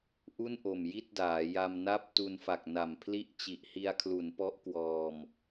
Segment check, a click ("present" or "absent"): absent